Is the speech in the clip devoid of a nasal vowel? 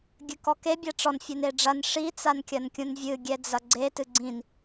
no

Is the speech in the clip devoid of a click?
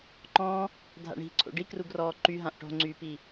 no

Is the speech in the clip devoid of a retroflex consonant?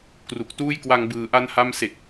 yes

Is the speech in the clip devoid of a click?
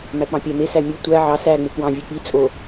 yes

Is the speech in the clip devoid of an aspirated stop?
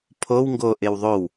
no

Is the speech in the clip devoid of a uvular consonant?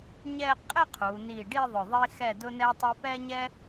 no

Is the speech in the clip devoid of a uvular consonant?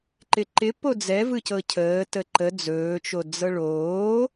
yes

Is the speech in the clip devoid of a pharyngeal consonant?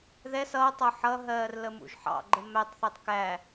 no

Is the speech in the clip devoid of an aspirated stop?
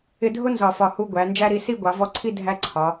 no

